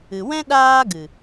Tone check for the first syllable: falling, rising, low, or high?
low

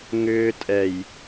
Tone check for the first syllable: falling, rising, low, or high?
high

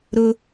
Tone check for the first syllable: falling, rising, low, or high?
high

